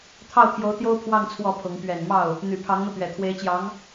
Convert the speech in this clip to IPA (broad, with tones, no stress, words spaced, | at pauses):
t̪ʰɑ˥˩ʊ̯t̪ʰjo˧˥ʊ̯t̪jo˥ʊ̯ pʰwɑ˥˧ŋ t͡sʰwɔ˥˩pʰʊ˧˥ŋ pɥɛ˨˩nmɑ˥˩ʊ̯ | n̪y˨˩pʰɑ˧˥ŋn̪ɤ˧t̪ɥɛ˨˩ t̪ʰwe˧˥ɪ̯t͡ɕjɑ˧˥ŋ